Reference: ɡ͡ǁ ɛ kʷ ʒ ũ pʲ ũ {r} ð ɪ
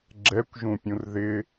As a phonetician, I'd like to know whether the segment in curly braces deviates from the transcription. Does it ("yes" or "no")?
no